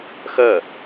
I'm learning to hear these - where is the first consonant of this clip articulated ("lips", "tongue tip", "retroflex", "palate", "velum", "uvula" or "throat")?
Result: velum